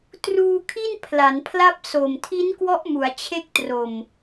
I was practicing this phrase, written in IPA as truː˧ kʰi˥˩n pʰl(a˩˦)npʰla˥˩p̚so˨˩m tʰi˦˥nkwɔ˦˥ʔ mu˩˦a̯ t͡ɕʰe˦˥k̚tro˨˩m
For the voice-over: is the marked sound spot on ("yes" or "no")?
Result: yes